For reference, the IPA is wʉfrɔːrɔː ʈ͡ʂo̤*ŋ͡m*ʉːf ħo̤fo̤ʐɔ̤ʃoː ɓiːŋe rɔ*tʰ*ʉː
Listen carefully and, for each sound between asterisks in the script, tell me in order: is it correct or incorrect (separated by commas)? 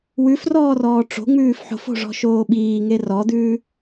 correct, incorrect